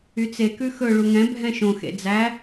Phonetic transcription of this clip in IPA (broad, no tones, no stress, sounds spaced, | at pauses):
y t͡s e k ʉ x ɵ ɭ u ŋ ɛ̃ bʱ ɛ̃ ʃ õ x ḛ d͡z æ